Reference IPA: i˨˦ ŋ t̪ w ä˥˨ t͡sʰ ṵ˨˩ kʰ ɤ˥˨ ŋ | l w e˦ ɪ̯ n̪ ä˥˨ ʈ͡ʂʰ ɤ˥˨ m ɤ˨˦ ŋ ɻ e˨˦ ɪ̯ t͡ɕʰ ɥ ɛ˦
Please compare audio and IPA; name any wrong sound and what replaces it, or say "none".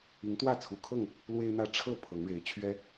m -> pʰ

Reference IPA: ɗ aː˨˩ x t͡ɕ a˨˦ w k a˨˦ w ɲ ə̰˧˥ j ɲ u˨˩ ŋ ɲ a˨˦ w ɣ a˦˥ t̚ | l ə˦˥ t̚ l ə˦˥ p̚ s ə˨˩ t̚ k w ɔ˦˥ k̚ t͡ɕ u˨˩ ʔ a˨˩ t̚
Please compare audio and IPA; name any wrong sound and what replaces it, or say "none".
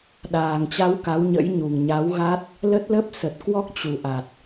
x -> ŋ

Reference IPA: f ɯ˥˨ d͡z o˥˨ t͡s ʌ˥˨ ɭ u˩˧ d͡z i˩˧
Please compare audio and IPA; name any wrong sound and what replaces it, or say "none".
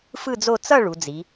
none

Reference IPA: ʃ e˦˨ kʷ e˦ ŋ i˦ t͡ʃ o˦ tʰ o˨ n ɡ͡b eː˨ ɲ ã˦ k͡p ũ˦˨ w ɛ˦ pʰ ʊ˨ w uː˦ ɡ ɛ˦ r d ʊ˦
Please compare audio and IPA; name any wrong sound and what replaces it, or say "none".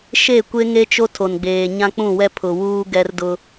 i˦ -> e˦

